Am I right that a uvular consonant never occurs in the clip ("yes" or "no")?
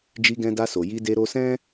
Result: yes